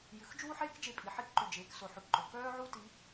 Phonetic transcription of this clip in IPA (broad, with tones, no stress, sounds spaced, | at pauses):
j ʉ˩˧ x d͡ʒ uː˥ ħ eː˥ k d͡ʒ e˧ pʼ i˩˧ ħ i˧˥ k ǃ ʉ˩ d͡ʒ eː˩˧ k s o˩˧ ħ ʉ˩ k ǃ ɵ˩ k œː˥ ʕ u˥ t i˧˥